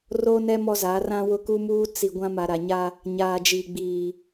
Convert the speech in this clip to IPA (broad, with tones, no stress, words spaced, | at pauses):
ro˦nɛ˦ mɔ˦za˨˦ rã˦wʊ˦ku˦muː˦ t͡si˨ ɡʷã˦ma˨ɾa˨ɲa˦ | ɲaː˨d͡ʒiː˨ ɡ͡biː˨